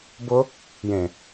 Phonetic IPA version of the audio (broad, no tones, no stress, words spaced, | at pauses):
bʊ | jẽ